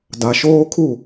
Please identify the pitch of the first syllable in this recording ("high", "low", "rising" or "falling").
low